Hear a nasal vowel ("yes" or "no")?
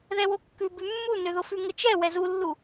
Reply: no